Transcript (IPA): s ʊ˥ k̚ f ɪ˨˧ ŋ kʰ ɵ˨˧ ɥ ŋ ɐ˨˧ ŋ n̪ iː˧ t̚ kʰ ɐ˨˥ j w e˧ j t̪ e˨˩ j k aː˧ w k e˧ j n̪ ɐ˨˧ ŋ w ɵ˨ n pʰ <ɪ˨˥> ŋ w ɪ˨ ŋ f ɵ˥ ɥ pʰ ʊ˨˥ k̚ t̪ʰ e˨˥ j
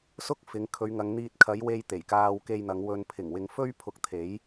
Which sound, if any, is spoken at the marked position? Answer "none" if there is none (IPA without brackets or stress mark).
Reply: ɪ˨˩